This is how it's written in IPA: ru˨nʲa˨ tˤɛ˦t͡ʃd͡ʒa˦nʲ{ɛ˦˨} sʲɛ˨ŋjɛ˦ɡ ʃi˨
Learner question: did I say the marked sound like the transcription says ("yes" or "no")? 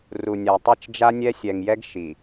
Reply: no